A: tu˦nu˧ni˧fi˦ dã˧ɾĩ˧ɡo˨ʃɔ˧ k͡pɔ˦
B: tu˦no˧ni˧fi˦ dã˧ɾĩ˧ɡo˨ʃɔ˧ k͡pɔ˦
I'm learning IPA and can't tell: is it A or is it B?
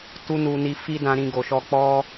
A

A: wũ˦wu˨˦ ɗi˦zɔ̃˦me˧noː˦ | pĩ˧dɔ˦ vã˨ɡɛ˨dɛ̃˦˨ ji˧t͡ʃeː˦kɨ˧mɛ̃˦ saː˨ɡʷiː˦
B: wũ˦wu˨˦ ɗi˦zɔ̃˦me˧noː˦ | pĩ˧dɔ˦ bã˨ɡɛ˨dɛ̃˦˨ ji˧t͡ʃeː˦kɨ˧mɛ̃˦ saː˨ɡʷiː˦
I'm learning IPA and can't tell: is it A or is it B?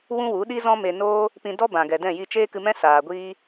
B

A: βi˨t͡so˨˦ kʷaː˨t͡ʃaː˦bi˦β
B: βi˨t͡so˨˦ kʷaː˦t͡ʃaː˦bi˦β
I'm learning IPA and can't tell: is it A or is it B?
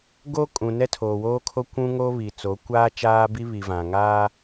B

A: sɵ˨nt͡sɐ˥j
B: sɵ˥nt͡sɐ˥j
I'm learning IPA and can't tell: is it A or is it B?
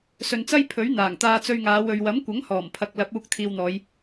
A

